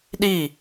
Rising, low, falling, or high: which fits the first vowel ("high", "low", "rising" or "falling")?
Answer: falling